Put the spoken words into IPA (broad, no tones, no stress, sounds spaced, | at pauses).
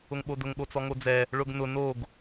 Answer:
ʊ ŋ ɓ o d ʊ ŋ ɠ o t͡s ɔ ŋ o d͡z ɛ | ɭ ʊ ɡ n ʊ n o ɡ